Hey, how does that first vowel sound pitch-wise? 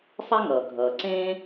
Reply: high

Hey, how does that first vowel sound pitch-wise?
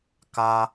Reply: high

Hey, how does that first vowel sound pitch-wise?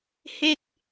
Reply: falling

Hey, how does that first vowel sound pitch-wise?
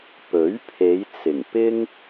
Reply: rising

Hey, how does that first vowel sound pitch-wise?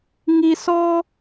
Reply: low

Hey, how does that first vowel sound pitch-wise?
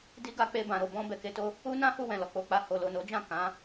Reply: high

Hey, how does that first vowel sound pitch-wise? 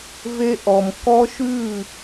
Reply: high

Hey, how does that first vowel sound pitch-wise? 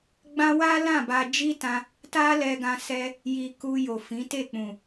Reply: high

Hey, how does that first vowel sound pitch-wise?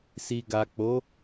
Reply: low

